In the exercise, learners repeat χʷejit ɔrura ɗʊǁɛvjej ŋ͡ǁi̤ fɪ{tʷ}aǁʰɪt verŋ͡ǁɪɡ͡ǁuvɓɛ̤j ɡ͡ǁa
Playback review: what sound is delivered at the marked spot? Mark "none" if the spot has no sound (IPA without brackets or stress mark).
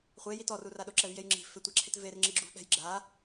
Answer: tʷ